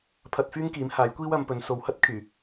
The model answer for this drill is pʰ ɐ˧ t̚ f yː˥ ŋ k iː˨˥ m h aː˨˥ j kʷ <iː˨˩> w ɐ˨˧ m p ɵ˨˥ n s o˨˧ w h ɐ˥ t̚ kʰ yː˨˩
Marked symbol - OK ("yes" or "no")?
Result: no